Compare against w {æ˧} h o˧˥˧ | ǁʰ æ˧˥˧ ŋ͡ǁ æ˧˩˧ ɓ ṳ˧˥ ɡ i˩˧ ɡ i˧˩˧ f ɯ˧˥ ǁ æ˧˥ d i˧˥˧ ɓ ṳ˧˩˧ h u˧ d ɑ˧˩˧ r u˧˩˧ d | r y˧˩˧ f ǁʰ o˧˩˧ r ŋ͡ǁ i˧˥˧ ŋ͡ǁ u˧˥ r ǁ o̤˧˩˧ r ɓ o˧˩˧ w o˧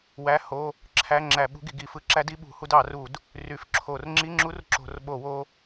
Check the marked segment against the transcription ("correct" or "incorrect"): incorrect